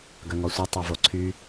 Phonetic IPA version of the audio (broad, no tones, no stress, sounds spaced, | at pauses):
ɡ œ ŋ ɔ sʷ a tˤ a v o ǀʰ y